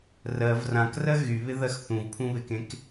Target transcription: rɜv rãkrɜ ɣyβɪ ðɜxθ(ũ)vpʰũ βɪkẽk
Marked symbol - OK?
yes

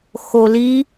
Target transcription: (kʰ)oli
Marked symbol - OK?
no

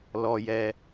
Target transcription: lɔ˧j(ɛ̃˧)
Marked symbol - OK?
no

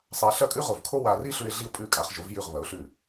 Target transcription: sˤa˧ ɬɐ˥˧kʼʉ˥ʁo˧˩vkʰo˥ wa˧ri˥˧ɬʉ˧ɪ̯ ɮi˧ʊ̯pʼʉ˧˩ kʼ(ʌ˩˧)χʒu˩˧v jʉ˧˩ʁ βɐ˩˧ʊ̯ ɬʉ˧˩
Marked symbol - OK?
no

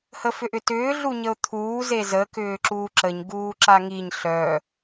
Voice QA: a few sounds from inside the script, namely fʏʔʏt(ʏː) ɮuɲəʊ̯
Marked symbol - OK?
yes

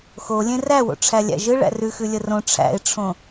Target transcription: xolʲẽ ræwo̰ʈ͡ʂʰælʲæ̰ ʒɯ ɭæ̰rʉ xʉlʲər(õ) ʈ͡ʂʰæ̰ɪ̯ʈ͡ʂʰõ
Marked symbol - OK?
yes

